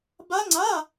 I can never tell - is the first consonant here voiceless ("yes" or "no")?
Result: no